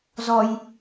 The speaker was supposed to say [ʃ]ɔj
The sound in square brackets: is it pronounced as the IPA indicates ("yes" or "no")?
no